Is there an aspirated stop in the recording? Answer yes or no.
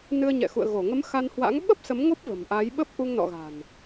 no